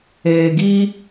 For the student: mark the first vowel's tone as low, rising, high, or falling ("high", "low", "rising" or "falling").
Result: low